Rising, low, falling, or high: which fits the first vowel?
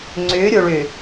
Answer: rising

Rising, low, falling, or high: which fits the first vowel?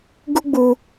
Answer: high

